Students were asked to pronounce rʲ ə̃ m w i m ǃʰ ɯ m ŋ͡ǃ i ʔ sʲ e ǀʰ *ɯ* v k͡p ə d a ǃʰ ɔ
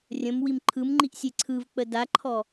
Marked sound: correct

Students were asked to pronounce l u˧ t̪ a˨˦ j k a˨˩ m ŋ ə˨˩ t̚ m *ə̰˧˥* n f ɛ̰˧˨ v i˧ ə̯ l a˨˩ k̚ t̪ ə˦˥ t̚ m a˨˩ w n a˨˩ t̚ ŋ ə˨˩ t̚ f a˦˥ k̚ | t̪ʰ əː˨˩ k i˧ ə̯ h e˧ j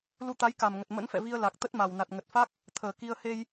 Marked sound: correct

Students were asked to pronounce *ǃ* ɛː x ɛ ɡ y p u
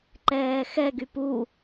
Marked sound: correct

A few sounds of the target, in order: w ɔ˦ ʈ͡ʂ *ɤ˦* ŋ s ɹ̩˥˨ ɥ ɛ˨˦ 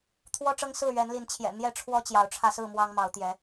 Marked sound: correct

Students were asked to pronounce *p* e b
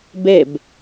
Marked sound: incorrect: b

